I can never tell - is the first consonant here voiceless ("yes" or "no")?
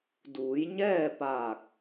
no